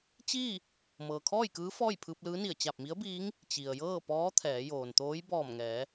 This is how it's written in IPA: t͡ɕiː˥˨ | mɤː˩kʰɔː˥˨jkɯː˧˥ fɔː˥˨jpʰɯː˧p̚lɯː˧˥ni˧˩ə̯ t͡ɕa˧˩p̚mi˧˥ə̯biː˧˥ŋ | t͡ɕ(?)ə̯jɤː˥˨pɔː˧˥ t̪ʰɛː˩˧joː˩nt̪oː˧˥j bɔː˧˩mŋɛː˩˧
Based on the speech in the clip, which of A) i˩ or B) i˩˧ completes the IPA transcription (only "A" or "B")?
A